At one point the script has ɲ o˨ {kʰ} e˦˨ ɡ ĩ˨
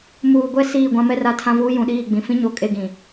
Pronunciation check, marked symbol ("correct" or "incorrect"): incorrect